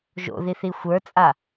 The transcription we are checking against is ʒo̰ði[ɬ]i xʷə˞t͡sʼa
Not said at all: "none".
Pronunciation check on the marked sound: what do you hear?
θ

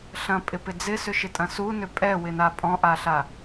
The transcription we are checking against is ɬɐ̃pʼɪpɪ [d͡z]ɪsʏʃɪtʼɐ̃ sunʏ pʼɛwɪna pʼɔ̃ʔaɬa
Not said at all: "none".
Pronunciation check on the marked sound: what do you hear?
d͡z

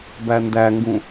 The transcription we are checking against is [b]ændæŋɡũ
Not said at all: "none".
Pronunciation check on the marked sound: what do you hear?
b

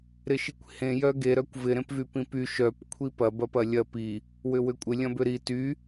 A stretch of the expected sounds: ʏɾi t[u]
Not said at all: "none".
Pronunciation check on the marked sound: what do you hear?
y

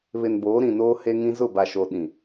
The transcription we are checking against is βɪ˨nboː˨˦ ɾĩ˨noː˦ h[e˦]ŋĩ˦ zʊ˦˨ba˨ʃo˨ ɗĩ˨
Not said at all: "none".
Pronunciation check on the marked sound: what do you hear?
e˦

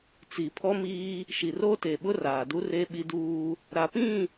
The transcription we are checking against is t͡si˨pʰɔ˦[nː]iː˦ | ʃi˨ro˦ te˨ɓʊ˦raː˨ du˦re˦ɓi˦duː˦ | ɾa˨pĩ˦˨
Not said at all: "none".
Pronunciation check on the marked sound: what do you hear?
m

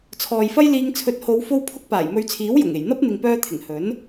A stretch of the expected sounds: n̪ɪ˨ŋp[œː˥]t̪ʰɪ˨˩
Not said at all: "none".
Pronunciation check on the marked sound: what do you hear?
œː˧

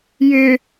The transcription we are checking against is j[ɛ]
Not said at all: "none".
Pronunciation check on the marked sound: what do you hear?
ɪ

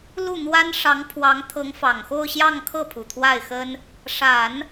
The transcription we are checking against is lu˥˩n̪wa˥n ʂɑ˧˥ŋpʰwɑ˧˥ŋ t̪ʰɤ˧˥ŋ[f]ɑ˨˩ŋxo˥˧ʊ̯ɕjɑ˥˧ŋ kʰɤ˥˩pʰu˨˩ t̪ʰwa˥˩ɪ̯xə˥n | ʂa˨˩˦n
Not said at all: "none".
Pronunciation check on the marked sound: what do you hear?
f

